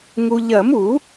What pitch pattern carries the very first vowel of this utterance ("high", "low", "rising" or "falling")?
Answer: low